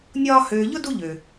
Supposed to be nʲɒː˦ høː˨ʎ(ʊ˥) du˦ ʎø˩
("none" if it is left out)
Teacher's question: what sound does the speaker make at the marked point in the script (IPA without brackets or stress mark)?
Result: ʊ˥